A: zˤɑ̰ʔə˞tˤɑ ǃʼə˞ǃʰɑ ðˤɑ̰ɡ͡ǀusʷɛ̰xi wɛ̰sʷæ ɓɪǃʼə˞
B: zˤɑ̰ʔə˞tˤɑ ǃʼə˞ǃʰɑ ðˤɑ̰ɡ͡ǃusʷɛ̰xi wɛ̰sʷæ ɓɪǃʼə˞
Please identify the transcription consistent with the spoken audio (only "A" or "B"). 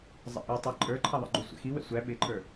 B